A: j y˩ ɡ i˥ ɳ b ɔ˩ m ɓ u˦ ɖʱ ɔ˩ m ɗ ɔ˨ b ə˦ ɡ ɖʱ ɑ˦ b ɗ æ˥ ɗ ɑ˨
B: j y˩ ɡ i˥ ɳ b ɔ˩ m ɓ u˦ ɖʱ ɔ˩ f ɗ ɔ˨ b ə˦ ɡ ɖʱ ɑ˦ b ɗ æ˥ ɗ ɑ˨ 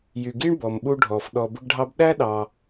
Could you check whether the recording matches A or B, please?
B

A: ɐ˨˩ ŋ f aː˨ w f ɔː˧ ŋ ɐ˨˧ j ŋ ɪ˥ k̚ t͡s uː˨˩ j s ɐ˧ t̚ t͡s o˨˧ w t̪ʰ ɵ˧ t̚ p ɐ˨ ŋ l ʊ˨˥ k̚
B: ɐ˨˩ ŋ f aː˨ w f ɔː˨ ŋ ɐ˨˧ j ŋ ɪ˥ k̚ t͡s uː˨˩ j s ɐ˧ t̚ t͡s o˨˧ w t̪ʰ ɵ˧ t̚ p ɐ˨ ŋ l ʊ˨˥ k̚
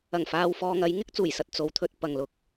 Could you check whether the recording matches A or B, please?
B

